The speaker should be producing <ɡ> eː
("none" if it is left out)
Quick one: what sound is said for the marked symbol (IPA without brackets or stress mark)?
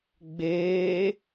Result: ɡ͡b